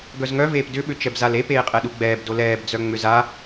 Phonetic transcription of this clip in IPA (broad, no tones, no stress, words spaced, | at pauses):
ɡœzŋœveːp dʏɓʏ t͡ʃɛbzale peːqʼɛɗuɡ͡bɛːb dolɛːbd͡zœ ŋ͡mʏza